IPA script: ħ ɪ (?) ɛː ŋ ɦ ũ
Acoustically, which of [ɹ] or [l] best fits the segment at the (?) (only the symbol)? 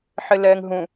l